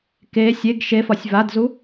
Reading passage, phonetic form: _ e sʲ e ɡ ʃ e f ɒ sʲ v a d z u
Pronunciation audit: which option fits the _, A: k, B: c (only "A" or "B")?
A